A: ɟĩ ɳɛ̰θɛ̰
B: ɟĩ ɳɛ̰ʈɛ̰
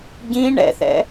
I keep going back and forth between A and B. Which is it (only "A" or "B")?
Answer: A